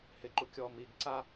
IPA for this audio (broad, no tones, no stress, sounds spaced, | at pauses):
h ɪ ǃ u kʲ ɔ m i ɡ ǀ a